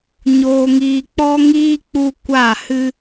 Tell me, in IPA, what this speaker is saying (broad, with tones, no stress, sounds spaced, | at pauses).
ɲ oː˧ ŋ iː˧ k͡p ɔ˦ ŋ iː˦ k͡p u˦ kʷ a˦˨ h ɨ˦